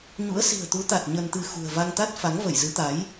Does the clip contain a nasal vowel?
no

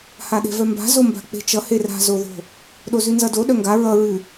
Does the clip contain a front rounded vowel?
yes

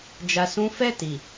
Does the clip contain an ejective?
no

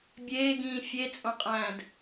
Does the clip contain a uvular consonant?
yes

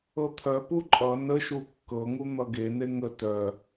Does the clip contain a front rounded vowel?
yes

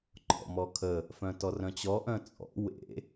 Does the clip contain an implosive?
no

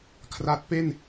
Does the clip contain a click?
no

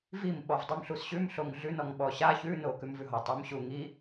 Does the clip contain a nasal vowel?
no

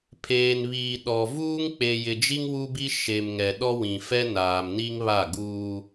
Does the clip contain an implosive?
yes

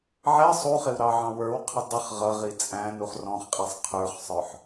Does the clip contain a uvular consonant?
yes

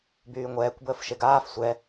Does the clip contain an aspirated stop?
no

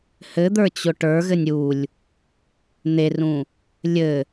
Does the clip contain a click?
no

